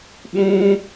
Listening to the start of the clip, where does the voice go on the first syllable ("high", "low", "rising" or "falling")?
high